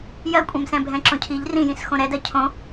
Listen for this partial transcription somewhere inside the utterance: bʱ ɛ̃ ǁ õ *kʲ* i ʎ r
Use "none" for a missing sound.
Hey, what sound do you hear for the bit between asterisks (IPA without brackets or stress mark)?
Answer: cʰ